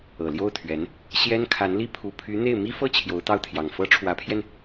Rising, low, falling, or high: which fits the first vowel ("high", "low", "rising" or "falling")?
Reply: low